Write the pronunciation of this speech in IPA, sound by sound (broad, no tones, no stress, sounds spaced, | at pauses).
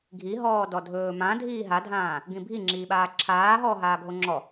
ɡʱ i ɦ ɔː d ɔ dʱ ɵː m ã dʱ iː ɦ a dʱ ãː | ɡ ĩ bʱ i ŋ͡ǁ iː ɓ aː ǁʰ aː ɦ ɔː ɦ aː ɡʱ o ŋ͡ǁ ɔ